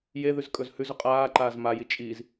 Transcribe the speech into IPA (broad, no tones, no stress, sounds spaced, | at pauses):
j e ð ʉ z kʼ ɵ z h ʉ z ɵ qʼ aː ǃ aː z m a j i t͡ʃʼ i z